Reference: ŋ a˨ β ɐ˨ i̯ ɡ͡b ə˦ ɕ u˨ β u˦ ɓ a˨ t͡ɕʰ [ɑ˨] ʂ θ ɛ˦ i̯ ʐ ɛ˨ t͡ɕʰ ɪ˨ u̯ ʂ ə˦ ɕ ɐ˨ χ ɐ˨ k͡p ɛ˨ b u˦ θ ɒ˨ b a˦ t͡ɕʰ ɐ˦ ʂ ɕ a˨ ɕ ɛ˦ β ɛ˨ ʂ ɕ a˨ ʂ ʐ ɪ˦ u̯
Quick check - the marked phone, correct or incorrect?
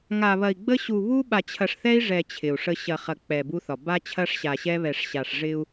incorrect